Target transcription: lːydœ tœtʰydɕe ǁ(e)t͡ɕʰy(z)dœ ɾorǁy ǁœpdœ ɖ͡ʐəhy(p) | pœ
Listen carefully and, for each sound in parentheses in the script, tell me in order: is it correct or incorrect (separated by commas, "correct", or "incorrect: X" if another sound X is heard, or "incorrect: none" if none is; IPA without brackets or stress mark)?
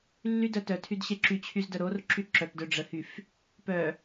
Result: incorrect: y, correct, incorrect: f